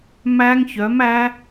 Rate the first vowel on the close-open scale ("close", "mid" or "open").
open